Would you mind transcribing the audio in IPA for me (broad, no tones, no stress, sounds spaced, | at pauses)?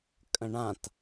kʼ ə̃ ɳ ã t